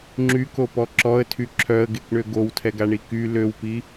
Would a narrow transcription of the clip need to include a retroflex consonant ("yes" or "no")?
yes